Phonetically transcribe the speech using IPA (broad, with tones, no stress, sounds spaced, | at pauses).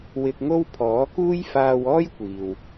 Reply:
w ɪ˧ k̚ ŋ o˥ w pʰ ɔː˨˥ k uː˥ j f aː˧ w ɔː˥ j kʷ iː˨ w